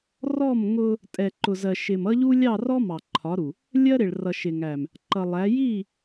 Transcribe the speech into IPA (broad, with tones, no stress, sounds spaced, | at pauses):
r ɔ˦˨ m ŋ ʊ˦ | tʼ ɛ˨ ǃ ʊ˨ z ɜ˨ ʃ ɪ˨ m ʌ˦ ʎ u˦ lʲ ɑ˦˨ r ɔ˦ m ɑ˨ ǃʰ ɒ˨˦ ɾ u˨ | lʲ ɜ˦ ɾ ɪ˨ ɭ r ʌ˨ ʃ ɪ˨ ŋ æ˨ m | ǃ ʌ˨ lˠ æ˨˦ j i˦˨